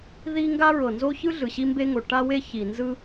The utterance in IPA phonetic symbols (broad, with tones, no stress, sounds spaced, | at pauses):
ð i˥ ŋ ɡ a˥ ɹ ɤ˩ n z o˥ ç ɯ˥ ɮ ɯ˩ ɕ i˥ m b e˥ ŋ o˩ ʈ a˥ w e˥ ç i˩ n z ɯ˥